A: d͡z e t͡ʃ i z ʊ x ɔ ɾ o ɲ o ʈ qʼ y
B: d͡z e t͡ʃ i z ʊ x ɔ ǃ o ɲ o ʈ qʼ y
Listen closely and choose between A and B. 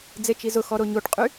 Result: A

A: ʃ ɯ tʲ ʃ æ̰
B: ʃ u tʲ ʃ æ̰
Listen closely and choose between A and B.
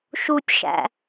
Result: B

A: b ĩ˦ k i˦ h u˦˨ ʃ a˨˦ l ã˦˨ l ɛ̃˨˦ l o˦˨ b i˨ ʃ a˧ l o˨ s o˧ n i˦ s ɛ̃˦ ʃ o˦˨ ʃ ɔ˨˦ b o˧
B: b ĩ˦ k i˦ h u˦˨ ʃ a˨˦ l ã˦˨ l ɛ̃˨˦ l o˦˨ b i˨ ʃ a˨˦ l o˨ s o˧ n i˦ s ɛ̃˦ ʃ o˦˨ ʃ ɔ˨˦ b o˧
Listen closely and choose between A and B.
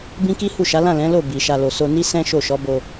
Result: A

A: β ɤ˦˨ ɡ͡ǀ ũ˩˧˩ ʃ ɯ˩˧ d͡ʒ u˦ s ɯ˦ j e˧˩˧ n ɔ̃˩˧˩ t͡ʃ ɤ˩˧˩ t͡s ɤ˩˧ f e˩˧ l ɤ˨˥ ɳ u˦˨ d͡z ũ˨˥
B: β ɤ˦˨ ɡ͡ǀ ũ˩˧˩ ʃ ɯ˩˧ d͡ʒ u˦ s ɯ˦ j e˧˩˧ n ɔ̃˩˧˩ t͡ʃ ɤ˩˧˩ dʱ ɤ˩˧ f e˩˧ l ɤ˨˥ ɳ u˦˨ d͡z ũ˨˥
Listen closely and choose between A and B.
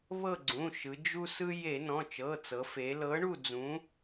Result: A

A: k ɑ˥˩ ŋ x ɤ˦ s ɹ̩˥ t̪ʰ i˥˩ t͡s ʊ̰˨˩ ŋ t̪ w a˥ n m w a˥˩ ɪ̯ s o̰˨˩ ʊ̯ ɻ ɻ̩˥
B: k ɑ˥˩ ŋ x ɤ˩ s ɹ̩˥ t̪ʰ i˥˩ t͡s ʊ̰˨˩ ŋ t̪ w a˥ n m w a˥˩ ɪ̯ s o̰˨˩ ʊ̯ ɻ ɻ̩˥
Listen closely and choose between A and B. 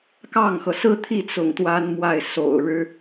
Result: B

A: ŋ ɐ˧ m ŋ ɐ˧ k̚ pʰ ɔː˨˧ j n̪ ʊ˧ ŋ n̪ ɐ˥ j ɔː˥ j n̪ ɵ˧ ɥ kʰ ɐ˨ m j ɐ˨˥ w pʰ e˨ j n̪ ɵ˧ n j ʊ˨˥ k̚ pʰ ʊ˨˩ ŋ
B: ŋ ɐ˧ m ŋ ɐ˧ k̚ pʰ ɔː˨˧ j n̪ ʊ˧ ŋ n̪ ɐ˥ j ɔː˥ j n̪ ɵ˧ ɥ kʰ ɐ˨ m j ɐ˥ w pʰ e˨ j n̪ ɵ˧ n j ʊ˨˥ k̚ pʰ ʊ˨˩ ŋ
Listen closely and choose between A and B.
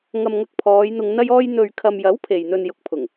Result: A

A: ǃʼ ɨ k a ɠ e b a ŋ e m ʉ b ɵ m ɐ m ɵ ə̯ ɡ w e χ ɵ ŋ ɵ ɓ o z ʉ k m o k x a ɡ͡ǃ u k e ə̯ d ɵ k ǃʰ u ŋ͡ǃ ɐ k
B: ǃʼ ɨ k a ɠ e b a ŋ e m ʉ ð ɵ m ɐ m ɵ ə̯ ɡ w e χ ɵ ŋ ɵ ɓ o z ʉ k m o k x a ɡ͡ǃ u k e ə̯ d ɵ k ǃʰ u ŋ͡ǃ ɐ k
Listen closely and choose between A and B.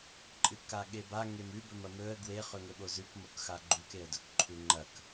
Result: A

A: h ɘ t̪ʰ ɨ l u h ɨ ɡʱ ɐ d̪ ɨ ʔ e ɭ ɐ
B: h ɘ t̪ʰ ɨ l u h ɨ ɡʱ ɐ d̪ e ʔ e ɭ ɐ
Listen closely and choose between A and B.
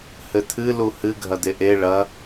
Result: B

